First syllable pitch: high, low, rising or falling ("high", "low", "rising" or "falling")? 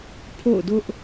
falling